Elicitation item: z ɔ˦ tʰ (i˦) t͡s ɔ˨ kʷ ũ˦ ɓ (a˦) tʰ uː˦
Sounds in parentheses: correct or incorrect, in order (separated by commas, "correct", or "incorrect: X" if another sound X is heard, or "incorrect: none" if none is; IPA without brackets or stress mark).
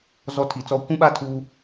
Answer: incorrect: i˨, correct